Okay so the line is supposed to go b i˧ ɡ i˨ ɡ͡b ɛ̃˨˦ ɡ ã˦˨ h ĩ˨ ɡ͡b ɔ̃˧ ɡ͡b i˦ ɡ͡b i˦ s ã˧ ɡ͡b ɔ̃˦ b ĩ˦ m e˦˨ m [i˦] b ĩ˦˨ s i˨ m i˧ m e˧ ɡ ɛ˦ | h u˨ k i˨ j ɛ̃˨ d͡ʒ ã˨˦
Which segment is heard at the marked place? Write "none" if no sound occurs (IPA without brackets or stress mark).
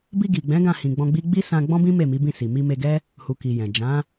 i˨˦